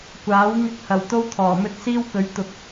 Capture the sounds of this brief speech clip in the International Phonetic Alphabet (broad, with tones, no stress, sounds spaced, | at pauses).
kʷ aː˨˥ w ŋ ɪ˥ k̚ h ɐ˨˩ w t̪ o˥ w t̪ʰ ɔː˨˩ m ɵ˥ t̚ s iː˥ w k ɵ˨˥ ɥ t̪ ʊ˨ k̚